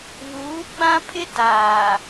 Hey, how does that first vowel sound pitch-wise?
rising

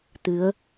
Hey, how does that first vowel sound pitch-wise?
rising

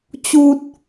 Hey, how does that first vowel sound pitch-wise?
high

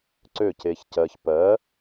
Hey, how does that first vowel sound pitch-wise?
falling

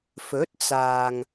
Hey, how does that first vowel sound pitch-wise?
rising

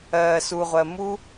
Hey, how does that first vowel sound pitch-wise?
low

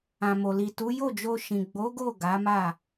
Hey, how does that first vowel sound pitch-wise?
low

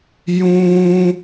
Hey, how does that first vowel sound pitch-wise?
high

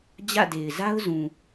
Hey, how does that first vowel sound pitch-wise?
falling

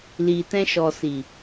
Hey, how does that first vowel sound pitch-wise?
low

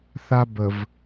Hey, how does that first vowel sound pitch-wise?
high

